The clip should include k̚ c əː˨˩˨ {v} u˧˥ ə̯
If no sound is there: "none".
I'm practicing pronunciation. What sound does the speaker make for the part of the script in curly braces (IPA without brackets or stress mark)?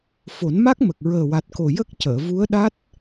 v